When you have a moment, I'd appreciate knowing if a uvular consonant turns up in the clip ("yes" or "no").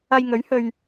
no